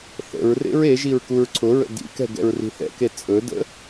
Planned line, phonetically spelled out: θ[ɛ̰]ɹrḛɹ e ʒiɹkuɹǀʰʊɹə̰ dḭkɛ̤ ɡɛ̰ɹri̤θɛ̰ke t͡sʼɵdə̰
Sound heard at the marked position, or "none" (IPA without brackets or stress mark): ə̰